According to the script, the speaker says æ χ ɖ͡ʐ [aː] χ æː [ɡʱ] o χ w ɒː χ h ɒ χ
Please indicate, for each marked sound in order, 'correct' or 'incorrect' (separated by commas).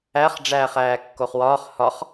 incorrect, incorrect